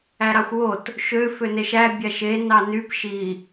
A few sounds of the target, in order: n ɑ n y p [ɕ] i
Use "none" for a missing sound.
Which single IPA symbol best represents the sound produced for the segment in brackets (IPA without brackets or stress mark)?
ʃ